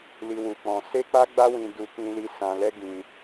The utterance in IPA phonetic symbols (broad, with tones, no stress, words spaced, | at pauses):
li˧ wu˧k͡pɔ̃˧ se˦k͡pa˦ɡ͡ba˦wĩ˧ du˧ kĩ˧li˧ sã˧lɛ˦ɡĩ˧